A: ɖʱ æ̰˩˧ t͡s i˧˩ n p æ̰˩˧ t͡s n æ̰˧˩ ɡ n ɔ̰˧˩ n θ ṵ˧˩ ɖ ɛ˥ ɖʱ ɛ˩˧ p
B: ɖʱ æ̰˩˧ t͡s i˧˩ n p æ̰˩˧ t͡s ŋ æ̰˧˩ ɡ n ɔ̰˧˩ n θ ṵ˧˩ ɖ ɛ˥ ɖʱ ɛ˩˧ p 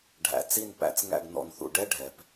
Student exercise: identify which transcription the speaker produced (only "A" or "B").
B